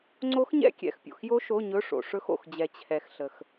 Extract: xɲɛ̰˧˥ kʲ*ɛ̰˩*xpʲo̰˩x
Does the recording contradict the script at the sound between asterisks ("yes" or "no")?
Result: no